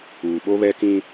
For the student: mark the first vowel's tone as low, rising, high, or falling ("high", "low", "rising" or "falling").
low